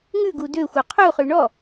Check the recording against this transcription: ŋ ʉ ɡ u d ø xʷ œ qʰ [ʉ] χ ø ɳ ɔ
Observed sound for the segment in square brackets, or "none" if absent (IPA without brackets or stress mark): u